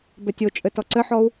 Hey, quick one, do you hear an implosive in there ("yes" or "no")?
no